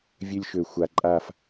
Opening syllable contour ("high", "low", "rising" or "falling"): high